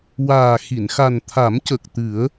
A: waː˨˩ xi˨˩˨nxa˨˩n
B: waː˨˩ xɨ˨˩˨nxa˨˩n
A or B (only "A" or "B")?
A